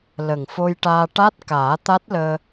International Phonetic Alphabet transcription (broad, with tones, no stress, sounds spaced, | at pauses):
l ə˨˩ ŋ f o˧ j ʈ aː˧ ʈ a˦˥ t̚ k aː˨˩˦ t̪ a˦˥ t̚ l əː˧